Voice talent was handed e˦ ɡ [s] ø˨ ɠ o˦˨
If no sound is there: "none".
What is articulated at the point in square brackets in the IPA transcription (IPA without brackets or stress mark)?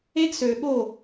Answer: s